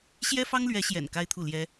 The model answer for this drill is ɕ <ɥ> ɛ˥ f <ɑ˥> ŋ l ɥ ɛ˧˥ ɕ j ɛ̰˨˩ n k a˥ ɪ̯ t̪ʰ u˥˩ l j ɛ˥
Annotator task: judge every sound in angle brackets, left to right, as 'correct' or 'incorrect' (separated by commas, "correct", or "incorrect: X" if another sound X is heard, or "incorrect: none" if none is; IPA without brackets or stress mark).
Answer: incorrect: j, correct